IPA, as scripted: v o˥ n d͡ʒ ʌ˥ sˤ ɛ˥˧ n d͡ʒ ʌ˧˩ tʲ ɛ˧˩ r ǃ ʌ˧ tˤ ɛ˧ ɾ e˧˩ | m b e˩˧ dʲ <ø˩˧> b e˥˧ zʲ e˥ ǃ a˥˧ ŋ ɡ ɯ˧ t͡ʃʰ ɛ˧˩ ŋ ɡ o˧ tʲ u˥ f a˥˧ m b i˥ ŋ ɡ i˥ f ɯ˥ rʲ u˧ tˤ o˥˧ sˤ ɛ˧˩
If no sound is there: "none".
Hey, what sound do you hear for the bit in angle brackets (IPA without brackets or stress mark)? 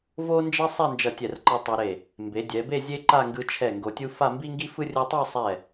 ɛ˩˧